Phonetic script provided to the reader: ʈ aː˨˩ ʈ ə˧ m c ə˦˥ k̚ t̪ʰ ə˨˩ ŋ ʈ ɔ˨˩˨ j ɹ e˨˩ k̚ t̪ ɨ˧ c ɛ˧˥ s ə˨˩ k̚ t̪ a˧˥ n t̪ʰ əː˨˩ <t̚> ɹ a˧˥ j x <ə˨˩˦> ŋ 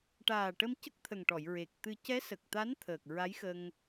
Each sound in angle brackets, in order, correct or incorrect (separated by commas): incorrect, incorrect